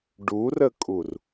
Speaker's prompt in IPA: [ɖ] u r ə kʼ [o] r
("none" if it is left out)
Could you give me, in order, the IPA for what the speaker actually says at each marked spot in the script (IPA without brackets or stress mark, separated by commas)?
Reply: ɖ, u